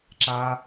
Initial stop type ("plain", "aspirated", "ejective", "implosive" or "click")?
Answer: click